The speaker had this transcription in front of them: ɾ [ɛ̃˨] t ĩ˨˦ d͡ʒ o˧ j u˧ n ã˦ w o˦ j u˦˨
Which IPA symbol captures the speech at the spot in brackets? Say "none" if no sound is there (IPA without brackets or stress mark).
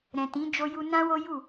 ɛ̃˨